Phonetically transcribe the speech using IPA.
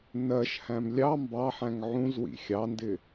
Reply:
nɜʃhæ̃m lʲɑ mbɑħæ̃ŋ ʕũz wḭxʲɑndɪ

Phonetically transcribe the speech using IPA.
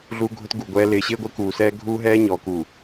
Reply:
ɮu˦ɡʱʊ˦tɡu˨ɡʷɛː˦ lɪː˨ɕɪː˦ɡʷɪː˦ kuː˨sɛː˦ ɡʱuː˦ɦɛː˦ ɲɔː˨ku˨

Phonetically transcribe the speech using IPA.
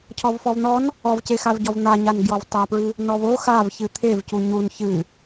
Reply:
cʰɔvfɔvn̪ɔn | ɔvcexav ɟɔvn̪aɲan ɡjɔvtˤapɹɨ | nɔvo xav çɨt̪ʰev cuɲun çɨ

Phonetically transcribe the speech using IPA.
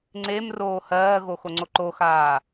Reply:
ŋ͡ǀem roːhɜːɣo xoŋ͡ǀoǃoxaː

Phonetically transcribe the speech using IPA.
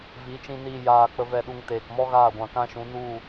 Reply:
vi˨˦t͡ʃĩ˧ niː˧ jaː˨ k͡pə˧vɛ˦˨ɗu˧ŋ teː˨kmɔ˦ɣaː˦˨ɡʷã˨ kã˦ʃũ˨˦ nu˦˨

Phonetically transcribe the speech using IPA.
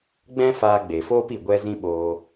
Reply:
ɡ͡bɛ̃˦faː˧ɡ͡be˨foː˦p i˨ɡʷɛ˧ zĩ˦ɓoː˧

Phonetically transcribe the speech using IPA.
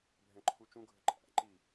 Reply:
bʱɛ̃ǃʰut͡ʃũɡʱə ǃʼæ̰ǃi

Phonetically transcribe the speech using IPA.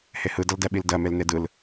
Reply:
hehɯ dʌldɛɓildɜ melnedɯl

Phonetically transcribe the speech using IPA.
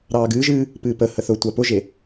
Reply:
ɾɑːɡɨːʒɨː | pɨːpəhə θʊtʷa pʊʒe

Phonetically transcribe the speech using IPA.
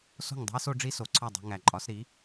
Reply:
so̤˥˩ŋdˤo̤˥i̯ so˥ɖ͡ʐi˥ so˩˥ǀʰɒ˥˩dˤo̤˧ ŋæ˩ǃʼɒ˩˥s ɾi˩˥

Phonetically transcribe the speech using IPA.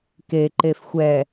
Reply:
keǃef xʷɛ

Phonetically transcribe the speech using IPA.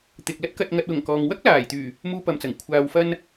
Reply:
t̪ɪ˨k̚lɐ˥t̚ kɐ˨t̚ŋɐ˨t̚wʊ˨˩ŋ kɔː˨ŋ wɐ˥k̚laː˨˩jt̪yː˨˩ | muː˧pɐ˨mt͡sɐ˨˩ŋ kʷʰaː˨wfɐ˧n

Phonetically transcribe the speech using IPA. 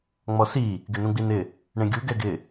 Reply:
ŋ͡mɔsi | ɡɪnũɡ͡binɪ | ɳẽɡʲu ɡɛɡɪ

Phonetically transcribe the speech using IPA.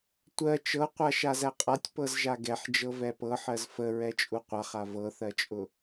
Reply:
tʷɜ t͡ʃɤqʷa ʃazæqʼatʲ pɤzʒaɡɛħ d͡ʒɤvɛpɤħɜz fə ɹɛt͡ʃʼuqʷaχa vɤθɜt͡ʃʼʊ

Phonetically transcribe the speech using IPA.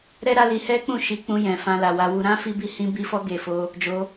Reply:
ɾɛ˦ɾa˦li˧ hɛ˦k͡pũ˦˨ ʃi˧k͡pũ˧jɛ̃˨ fã˧la˨wa˨˦wu˧ ɾã˦ fi˦bi˦ hĩ˧bi˧fɔ˧ ɡe˨fo˧ | d͡ʒo˧

